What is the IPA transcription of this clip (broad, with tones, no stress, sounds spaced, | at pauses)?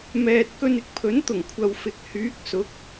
m ɛː˧ t̚ k ɵ˧ n ɪ˧ k̚ pʰ ɵ˨˥ n t̪ ʊ˨˩ ŋ kʷʰ ɐ˨ w f ɪ˨ k̚ h yː˨˥ k̚ s ʊ˨˥ k̚